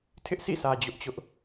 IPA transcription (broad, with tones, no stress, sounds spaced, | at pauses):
tʰ ɪ˦ ʔ s ḭ˦˨ s ä˨ d͡ʑ ʊ˦ ʔ t͡ɕ ʊ˦ ʔ